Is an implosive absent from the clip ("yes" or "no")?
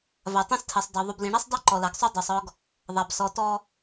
yes